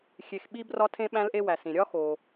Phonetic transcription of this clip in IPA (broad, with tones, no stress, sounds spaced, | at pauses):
xʲ e˨ x ɓ i˦ b r ɒ˦ tʰ ẽ˦ ɓ æ̃˦ l ʔ e˦ w æ˩ s ĩ˩ ɾʲ ɒ˦ x o˩